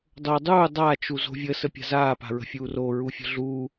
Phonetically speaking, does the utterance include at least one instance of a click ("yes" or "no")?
no